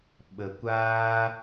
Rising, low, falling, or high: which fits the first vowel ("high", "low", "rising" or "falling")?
low